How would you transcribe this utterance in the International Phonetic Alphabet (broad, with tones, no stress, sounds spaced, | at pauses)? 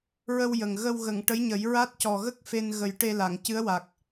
ɹ ə˧ w j ə˨˩ ŋ ɣ ə˧ w ɣ ə˨˩˨ ŋ ʈ ə˧˥ j ɲ ə˨˩˦ j ɹ a˦˥ t̚ c ɔ˨˩ ɣ ə˦˥ k̚ f e˧ n ɣ ə˨˩˦ j ʈ e˧ l a˨˩˨ ŋ c ɨ˧˥ ə̯ w a˨˩ k̚